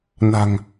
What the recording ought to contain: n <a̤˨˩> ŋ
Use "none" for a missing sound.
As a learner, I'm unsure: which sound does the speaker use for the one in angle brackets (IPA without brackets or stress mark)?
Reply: a̤˨˩